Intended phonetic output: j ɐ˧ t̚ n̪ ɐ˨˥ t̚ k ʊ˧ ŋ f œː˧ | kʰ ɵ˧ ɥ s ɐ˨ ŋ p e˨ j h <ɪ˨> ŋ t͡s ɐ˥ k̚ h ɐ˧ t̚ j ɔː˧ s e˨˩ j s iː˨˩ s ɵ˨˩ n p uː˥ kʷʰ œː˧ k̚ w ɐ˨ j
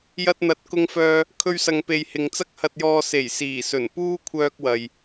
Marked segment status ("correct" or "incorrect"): correct